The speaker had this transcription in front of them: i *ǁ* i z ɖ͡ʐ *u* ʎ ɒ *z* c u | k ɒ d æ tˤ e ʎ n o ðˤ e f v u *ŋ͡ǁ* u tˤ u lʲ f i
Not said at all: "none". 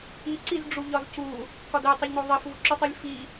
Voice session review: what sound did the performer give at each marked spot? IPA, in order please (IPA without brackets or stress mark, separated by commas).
ǀ, u, z, ǁ